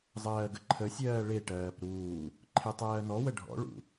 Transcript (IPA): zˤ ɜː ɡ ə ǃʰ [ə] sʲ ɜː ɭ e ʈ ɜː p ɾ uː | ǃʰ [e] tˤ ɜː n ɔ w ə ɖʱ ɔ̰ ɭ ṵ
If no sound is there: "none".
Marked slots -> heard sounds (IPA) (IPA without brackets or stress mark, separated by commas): ə, e